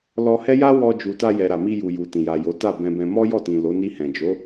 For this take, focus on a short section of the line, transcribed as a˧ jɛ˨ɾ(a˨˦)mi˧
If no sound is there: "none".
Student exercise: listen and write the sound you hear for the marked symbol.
a˨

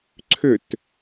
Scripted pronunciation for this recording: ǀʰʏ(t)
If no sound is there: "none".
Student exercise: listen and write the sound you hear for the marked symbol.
t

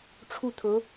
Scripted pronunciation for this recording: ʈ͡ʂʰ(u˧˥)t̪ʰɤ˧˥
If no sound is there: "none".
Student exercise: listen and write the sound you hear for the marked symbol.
u˥˩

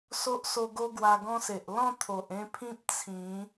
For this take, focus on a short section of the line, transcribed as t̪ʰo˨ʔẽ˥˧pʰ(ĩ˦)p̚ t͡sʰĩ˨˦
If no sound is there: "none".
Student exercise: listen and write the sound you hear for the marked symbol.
ĩ˦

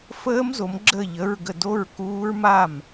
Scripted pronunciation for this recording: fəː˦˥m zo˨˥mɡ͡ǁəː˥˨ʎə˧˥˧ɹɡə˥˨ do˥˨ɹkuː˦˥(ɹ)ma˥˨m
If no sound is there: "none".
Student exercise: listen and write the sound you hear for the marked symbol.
ɹ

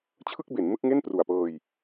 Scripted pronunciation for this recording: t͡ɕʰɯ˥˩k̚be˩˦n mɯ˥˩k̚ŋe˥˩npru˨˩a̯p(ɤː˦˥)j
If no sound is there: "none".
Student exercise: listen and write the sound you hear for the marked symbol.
ɤː˧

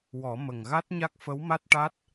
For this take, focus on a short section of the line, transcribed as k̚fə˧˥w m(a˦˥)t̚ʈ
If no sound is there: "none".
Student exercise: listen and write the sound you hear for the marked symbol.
a˦˥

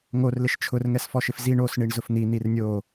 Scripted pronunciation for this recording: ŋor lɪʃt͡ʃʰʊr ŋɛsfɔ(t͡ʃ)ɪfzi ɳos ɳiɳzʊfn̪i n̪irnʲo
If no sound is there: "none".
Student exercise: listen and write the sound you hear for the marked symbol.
ʃ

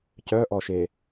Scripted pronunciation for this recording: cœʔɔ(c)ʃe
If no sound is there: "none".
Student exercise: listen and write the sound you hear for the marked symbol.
none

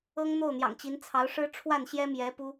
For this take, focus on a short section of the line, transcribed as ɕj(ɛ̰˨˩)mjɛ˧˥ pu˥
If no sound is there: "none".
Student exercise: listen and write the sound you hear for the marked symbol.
ɛ˥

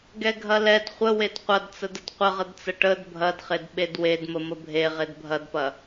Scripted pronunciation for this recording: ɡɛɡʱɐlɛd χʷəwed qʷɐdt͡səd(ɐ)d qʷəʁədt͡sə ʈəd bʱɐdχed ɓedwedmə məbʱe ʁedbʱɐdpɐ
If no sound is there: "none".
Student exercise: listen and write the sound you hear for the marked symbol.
ə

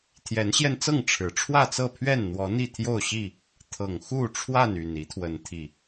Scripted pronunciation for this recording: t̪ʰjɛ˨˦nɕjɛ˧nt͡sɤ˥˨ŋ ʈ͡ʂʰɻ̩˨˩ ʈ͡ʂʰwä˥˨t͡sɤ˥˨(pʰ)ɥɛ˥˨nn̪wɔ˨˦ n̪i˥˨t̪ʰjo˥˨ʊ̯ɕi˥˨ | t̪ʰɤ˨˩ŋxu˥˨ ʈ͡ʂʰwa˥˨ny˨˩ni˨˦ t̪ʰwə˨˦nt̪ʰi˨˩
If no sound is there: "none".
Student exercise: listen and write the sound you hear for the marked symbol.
pʰ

